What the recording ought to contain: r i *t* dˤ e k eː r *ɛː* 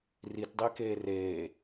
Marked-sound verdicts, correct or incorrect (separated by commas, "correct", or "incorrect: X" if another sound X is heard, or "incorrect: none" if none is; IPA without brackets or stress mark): correct, incorrect: eː